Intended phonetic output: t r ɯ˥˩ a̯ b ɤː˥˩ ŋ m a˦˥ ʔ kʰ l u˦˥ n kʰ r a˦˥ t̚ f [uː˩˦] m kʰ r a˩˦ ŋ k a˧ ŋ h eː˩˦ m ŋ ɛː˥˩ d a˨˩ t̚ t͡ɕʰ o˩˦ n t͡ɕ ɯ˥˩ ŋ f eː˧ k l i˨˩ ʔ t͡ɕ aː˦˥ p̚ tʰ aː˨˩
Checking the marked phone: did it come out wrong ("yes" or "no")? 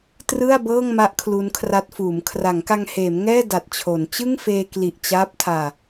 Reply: no